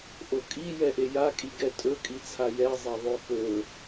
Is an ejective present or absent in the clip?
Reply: present